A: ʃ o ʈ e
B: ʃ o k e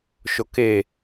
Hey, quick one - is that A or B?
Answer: B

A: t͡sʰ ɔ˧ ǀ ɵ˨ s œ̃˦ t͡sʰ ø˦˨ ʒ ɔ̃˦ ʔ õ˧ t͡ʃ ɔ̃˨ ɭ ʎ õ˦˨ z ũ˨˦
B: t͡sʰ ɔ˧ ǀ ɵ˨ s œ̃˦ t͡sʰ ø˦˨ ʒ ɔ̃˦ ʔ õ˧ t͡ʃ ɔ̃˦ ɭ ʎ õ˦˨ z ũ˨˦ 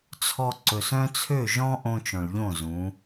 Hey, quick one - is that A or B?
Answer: A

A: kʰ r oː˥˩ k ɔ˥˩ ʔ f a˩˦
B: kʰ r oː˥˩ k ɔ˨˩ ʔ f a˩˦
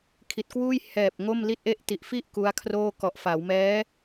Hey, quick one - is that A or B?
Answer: B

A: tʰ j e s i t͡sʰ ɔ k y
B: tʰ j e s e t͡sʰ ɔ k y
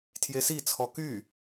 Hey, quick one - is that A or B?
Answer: A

